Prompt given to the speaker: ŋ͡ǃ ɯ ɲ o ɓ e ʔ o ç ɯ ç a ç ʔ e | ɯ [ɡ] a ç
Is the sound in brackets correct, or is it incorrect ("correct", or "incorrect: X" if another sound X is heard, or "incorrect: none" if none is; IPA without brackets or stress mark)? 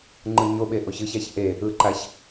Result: incorrect: ǃ